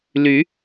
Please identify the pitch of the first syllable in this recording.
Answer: rising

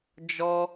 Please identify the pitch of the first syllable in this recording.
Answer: high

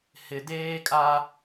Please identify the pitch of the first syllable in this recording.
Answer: low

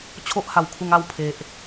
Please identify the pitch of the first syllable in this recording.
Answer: high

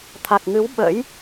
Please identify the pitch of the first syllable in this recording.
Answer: low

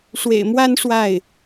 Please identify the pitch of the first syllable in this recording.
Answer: low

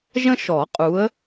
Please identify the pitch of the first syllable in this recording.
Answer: high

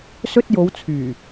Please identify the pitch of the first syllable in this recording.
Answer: high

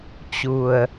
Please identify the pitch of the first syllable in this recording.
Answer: low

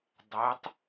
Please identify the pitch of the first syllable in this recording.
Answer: rising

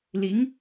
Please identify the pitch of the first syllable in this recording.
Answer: rising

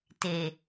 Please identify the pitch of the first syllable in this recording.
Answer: low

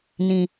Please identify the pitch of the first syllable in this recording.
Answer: low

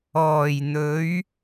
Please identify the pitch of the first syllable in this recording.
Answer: low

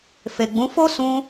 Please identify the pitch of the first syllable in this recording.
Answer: low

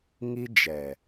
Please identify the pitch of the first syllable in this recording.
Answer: high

